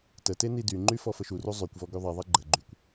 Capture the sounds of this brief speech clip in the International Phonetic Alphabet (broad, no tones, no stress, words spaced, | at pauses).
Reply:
təte nidyŋ͡ǃy fɔfəʃuru zˤykʷvɔ ɡyðˤiðˤi ɡ͡ǃə ɡ͡ǃykʷ